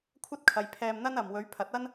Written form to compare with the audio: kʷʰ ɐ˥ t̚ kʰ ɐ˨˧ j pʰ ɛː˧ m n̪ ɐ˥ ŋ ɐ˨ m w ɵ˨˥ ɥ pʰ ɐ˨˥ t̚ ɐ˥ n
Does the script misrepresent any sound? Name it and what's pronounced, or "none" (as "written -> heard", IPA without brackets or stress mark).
ŋ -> n